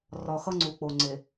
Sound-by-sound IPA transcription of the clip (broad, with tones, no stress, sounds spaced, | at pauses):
r ɒ˨ x ʌ˦ ŋ͡ǀ u˨ k͡p o˨ ŋ͡ǀ e˨